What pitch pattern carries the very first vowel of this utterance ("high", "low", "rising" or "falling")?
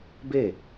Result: falling